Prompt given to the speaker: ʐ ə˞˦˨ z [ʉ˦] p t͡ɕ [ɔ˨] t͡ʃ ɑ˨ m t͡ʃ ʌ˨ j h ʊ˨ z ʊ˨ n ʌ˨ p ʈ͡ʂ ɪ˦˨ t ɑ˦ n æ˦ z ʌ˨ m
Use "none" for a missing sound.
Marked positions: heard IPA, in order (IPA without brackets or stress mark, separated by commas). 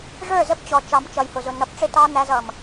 ə˦, ɔ˨